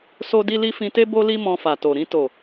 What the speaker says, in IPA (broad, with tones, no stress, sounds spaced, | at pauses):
s o˦ d i˦ l i˦ f ĩ˧ t e˦ b o˦ l i˦ m ɔ̃˧ f a˨ t o˨ ɾ ĩ˧ t o˨